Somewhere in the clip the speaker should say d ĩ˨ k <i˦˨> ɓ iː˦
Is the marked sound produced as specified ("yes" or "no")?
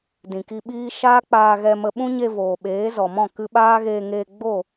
no